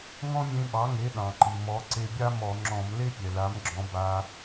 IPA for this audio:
ŋ ɔ̃˥ mʲ ẽ˧ ɓ ɑ˩˥ ŋ e˩˥ ɗ ɑ̃˩ ǃ i˩ m ɔ˩˧ ǀ e˧ bʲ a˥ m ɔ˧˩˧ ŋ͡ǁ ɔ̃˧˩˧ m l e˥ pʲ ɛ˩ l a˩˥ m ɡ͡ǁ ɔ̃˩˧ b a˩

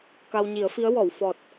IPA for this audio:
k a˧ w ɲ i˨˩˦ ə̯ f i˧˥ ə̯ w ɔ˨˩˨ w f ɔ˨˩ t̚

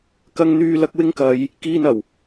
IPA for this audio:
k ɐ˨ ŋ n̪ yː˨ l ɐ˨ k̚ w ɪ˧ ŋ k ɐ˨ j | k iː˧ n ɐ˨˩ w

